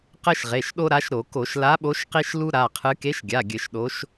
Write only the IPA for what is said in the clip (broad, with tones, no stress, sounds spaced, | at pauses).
q ɘ˦ ʃ ʁ e˩˧˩ ʃ ɗ o˦ ɾ a˨˥ ʃ ɾ o˧˩˧ k o˧˩˧ ʃ l a˨˥ ɓ o˨˥ ʃ q i˦ ʃ l u˦ ɾ a˩˧˩ qʰ ɨ˨˥ k e˨˥ ʃ ɡʲ a˩˧˩ ɡʲ ɘ˧˩˧ ʃ ɗ o˨˥ ʃ